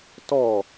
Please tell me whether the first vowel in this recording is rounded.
yes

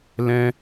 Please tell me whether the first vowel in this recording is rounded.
no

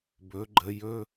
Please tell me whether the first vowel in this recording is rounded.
yes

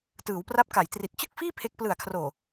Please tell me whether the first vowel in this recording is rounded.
no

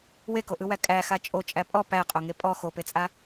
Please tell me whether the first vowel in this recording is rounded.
no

